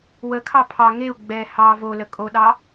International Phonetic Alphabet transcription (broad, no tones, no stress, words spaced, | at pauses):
wəkʰɑ pʰɑ ŋeu̯ ɡ͡bɛ hɑ volə kʼoɗɑ